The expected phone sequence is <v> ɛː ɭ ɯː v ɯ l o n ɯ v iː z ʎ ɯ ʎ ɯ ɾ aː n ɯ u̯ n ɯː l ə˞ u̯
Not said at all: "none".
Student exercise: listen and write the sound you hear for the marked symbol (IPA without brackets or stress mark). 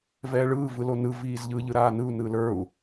v